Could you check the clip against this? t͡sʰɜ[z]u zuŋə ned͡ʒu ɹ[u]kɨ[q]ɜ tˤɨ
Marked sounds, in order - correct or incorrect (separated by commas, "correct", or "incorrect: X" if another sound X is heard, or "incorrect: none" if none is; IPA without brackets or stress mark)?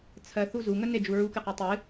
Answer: incorrect: θ, correct, correct